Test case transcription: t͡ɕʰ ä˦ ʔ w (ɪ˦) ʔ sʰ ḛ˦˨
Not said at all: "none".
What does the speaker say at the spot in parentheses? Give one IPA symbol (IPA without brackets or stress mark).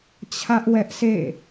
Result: ɛ˦